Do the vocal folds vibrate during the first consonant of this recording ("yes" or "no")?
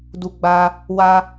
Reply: yes